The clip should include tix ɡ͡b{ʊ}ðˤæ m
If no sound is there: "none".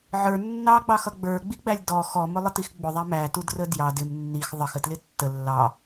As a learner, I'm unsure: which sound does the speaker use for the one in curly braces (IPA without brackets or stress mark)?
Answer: ʊ